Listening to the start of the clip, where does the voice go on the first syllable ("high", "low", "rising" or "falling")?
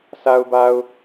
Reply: low